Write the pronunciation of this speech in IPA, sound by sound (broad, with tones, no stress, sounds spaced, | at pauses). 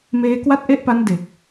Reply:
m eː˦˥ k w a˥˩ t̚ ʔ e˥˩ ʔ p a˦˥ n d e˨˩ k̚